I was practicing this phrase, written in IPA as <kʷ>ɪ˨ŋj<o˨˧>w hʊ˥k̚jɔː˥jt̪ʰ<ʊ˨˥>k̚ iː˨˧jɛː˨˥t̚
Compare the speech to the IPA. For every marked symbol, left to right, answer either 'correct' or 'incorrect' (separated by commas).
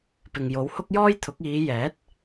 incorrect, correct, correct